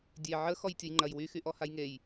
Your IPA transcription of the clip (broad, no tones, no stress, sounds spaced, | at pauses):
dʲ e ʕ ə x ɔ j tʲ ʊ j ŋ͡ǃ ɐ j w y x y ʔ ɔ h a j ŋ e j